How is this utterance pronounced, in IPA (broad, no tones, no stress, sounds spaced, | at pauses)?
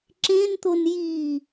ǁ ẽ n t̪ o n j i